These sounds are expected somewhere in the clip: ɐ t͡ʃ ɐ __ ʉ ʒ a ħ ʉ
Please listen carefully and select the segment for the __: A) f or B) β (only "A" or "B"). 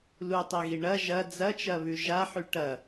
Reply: B